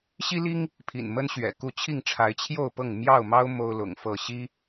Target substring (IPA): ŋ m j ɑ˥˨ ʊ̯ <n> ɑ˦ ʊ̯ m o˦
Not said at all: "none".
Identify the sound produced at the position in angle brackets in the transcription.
m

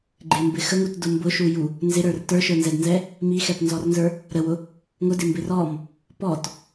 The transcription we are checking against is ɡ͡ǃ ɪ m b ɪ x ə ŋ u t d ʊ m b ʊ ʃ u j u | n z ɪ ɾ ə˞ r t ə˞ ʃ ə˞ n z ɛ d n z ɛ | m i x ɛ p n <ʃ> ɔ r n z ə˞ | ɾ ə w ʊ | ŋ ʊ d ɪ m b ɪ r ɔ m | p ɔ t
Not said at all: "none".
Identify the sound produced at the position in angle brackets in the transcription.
z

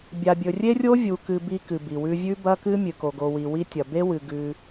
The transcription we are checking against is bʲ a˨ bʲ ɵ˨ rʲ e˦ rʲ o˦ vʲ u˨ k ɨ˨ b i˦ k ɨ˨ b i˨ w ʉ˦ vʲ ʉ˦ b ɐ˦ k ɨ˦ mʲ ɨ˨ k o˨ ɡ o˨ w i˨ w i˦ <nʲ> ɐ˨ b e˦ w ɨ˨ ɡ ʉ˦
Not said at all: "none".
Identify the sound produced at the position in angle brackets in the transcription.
tʲ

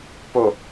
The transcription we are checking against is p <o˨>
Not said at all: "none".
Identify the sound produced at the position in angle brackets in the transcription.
o˨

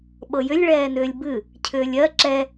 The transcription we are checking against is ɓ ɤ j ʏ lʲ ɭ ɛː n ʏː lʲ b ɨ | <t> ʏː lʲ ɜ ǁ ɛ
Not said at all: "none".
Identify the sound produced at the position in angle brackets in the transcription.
cʰ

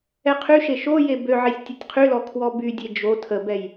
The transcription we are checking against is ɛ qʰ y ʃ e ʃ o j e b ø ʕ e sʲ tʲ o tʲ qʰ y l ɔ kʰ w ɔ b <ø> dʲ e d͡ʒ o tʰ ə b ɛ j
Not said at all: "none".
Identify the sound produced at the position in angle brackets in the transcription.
y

